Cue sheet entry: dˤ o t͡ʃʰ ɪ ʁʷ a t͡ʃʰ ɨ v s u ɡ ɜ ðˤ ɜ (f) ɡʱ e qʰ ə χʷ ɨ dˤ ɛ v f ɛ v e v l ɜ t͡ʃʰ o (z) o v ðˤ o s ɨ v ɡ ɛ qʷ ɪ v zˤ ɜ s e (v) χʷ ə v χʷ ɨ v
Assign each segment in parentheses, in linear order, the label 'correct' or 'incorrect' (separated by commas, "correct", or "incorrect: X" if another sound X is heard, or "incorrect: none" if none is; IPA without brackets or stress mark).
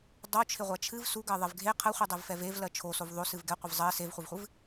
incorrect: v, incorrect: s, correct